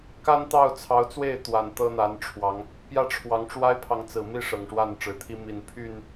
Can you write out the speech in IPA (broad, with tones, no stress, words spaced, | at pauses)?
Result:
ka˦nt̪ɑ˥˨ʊ̯t͡sʰɑ˨˦ʊ̯t͡swe˥˨ɪ̯ t̪wa˨˩n t̪ɤ˦n̪a˨˦nʈ͡ʂʰwɑ˨˦ŋ | pjä˥˨ʈ͡ʂʰwɑ˨˦ŋ ʈ͡ʂwa˦ɪ̯pʰɑ˨ŋt͡sɹ̩˨˩mi˥˨ ʂɤ˨˩ŋʂwa˥˨nʈ͡ʂɻ̩˨˩t̪ʰi˦ mi˨˩npʰy˥˨n